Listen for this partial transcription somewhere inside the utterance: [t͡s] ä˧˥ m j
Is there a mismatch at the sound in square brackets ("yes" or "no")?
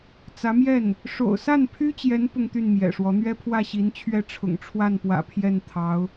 no